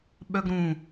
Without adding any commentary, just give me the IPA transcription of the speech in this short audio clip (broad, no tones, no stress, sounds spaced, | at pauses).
ɓ œ ɡ ɾ ũ